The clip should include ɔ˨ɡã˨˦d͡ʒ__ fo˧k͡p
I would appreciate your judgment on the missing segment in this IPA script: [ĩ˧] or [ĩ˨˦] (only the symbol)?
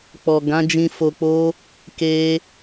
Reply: ĩ˧